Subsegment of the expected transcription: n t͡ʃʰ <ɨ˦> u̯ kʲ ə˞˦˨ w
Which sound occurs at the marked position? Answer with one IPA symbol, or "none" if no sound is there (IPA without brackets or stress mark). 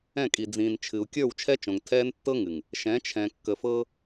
ɨ˨